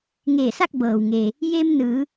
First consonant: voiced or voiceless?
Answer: voiced